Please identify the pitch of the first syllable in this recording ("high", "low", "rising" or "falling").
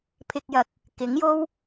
low